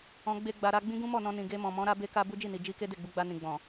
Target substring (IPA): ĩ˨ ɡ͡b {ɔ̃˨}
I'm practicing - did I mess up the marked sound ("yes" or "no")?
no